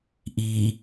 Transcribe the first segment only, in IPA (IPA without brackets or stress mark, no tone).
ʔ